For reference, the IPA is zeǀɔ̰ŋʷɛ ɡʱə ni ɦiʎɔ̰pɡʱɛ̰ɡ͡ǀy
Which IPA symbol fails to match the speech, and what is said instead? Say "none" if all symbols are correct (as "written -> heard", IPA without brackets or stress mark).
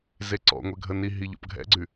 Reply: none